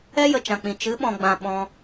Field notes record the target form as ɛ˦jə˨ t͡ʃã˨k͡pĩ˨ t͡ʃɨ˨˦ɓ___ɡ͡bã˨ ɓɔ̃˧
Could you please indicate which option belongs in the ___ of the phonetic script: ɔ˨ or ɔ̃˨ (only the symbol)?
ɔ̃˨